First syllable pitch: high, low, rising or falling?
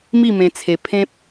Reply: falling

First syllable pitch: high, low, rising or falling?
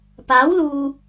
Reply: rising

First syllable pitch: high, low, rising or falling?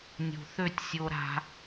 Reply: low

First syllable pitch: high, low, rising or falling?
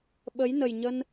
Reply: rising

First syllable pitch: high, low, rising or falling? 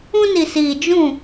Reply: high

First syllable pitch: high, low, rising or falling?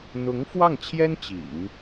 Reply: rising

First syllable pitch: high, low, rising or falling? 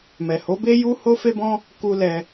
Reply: low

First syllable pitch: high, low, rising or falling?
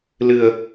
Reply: low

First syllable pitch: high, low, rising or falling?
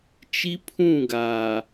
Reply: high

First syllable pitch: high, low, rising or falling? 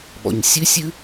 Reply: low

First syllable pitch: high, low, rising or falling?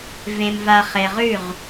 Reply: low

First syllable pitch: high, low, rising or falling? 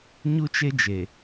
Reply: high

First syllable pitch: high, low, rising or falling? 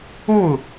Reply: falling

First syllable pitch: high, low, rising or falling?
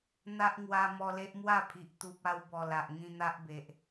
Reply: high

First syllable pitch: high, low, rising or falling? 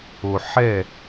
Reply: low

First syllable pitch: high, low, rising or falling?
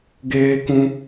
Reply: high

